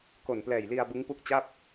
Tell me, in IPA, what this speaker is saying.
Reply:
k o˨˩ n p l ɛː˨˩ j l i˧ a̯ b ɯ˦˥ ŋ p u˦˥ k̚ t͡ɕ a˥˩ p̚

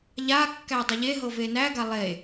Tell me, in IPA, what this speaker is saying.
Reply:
ʎ a kː æ dˤ ə ʎ e ɦ ɤ v e n æ ɡ a lˠ e

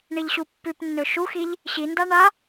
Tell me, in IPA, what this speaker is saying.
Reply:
ɳ i ʎ ɕ u pː ʉ p nː ɵ ʃ u x i ʎ | ɕ i n d a ɳ a

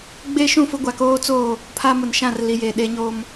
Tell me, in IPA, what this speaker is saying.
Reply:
ɡ͡b e˦ ʃ ũ˦˨ f ʊ˦ ɡʷ a˨ k oː˦ t͡s oː˦˨ | pʰ a˦ m ʊ˨ n ʃ ã˦˨ r l i˨ j e˨ ɗ e˦ ɲ o˦ m

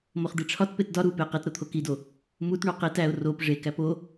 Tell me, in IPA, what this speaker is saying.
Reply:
m o χ d̪ i ʈ͡ʂʰ ɒ t p e t d ɒ ɾ u p e q i t ɾ o t̪ʰ o k i d o | m u t ɳ o q i t æ ʊ̯ r o p ʐ e k æ p o

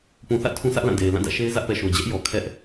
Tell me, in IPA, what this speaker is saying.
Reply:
p ũ˨ θ ä̰˦˨ tʰ ũ˦ sʰ ä˦ ʔ l ã˦˨ d e˨ ɪ̯ l ã˦˨ d ä̰˦˨ ʃ e˦ ɪ̯ z ä˦ ʔ p ɛ˨ ʃ o˨ d͡ʑ ɛ˦ ʔ j ɔ˨ kʰ ɛ˦ ʔ

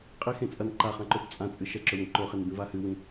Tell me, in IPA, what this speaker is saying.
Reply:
qʼ i x ẽ t͡sʼ ɐ n ǃ a χ ã ǃ o b t͡sʼ ã t͡sʼ ɨ ʃ ɐ ǁ ɵ w ẽ ǃ o χ e n b ĩ v a h ɨ w ĩ

